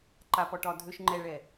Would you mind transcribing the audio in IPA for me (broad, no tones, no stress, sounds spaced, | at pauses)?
ǃ a p ɔ ʈ ɒ dʱ ø ʃ ŋ͡ǃ ɛ ɭ ɛ